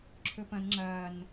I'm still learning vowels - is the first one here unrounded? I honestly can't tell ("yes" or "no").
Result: no